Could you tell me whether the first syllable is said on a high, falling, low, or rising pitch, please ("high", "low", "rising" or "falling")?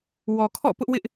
low